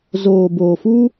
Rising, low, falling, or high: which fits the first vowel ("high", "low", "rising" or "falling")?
low